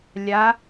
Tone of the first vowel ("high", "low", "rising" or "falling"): rising